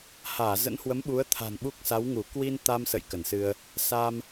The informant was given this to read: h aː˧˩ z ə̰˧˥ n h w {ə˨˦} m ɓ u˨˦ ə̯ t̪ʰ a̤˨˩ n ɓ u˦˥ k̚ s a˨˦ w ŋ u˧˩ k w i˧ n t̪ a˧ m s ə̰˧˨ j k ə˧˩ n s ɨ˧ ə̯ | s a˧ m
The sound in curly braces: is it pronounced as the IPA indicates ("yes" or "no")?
yes